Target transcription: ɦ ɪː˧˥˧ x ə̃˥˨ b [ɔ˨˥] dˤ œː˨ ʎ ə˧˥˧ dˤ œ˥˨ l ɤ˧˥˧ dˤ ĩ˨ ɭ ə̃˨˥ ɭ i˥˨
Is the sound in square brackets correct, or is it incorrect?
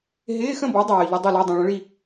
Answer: correct